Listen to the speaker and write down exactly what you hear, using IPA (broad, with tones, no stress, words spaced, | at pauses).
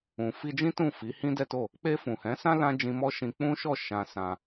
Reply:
ũ˨ fi˧d͡ʒĩ˦tũ˦˨ fi˨˦hĩ˦dɛ˦to˦˨ | k͡pe˧fũ˨hɛ̃˨˦sã˦ lã˦d͡ʒĩ˧mɔ˦ʃĩ˧ k͡pũ˦ʃɔ˦˨ ʃã˧ sã˧